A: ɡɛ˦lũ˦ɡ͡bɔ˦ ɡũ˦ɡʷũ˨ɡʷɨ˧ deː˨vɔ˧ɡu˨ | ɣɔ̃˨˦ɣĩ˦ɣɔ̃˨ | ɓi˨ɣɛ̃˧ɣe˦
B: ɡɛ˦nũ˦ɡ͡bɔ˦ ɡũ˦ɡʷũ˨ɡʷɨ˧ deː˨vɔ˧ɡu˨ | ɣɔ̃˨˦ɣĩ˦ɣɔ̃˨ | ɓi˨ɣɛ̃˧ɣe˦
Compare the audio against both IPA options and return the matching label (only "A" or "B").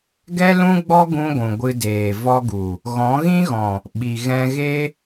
A